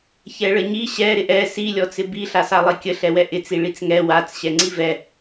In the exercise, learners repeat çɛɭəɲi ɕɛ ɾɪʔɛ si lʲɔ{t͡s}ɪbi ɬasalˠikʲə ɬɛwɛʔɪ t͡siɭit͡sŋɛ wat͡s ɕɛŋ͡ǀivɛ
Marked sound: correct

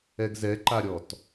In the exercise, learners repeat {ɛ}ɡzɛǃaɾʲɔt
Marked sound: correct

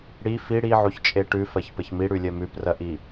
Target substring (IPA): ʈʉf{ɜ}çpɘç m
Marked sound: correct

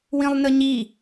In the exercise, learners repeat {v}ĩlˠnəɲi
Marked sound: incorrect: w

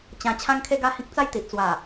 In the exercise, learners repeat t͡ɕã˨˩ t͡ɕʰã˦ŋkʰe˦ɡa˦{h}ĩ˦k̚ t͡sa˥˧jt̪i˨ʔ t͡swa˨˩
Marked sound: correct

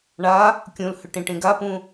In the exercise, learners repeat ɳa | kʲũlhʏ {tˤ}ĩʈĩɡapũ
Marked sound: incorrect: ʈ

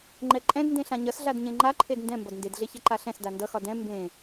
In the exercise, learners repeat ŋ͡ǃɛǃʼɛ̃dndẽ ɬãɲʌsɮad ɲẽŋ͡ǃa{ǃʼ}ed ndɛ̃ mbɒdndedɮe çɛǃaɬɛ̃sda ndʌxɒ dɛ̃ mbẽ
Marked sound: incorrect: ǃʰ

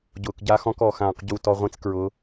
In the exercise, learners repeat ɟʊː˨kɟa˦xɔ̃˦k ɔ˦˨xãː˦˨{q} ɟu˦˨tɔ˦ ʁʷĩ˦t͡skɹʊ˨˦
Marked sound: correct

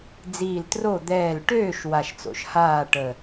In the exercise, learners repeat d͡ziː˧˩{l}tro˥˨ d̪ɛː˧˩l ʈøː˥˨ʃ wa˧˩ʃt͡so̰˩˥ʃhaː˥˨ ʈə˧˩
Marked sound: correct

